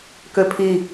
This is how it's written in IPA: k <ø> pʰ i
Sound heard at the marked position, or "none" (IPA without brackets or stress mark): ø